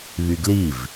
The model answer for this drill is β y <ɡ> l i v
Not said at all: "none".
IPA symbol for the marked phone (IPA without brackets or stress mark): ɡ